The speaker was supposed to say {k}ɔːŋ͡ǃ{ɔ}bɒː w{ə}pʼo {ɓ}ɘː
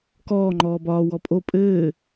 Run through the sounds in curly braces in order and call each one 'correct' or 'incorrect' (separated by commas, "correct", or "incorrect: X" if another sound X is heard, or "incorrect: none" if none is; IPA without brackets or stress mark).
correct, incorrect: ɔː, incorrect: ɔ, incorrect: pʼ